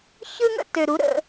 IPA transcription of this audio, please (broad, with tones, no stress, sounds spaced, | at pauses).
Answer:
ç ɯ˦ ŋ ə̰˦ t ø˨ ɾ u˨˦ ɾ ə̰˦